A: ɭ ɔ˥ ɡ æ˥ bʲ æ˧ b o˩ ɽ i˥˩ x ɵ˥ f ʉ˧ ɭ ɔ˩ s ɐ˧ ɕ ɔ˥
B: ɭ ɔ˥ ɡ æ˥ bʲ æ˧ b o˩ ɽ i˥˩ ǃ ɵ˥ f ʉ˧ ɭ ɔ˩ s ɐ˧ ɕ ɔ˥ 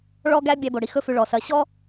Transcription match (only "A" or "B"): A